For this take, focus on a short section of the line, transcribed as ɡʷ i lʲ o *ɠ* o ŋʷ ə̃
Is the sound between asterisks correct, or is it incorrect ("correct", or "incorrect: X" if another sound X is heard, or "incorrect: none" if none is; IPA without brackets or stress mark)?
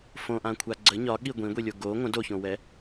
incorrect: ɡ